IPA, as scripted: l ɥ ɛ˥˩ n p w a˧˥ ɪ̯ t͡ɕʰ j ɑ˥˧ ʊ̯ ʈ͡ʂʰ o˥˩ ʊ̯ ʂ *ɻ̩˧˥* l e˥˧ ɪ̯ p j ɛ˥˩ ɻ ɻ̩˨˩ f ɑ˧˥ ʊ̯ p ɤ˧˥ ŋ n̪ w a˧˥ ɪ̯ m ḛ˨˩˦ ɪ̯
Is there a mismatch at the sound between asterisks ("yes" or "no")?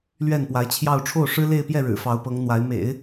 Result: yes